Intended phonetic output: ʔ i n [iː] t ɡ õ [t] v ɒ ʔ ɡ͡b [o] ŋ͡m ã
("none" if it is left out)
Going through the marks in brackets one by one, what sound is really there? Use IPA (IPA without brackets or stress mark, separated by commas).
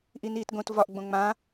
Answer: iː, t, õ